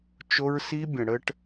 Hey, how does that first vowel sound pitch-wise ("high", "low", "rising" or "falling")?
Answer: high